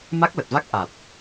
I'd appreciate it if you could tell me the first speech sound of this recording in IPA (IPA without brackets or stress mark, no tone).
m